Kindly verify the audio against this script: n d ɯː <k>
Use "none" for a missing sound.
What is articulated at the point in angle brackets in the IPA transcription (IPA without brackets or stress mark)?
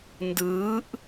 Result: ʔ